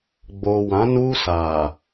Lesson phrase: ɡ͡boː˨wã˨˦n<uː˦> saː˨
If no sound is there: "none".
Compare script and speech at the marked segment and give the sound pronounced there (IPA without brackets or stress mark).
uː˦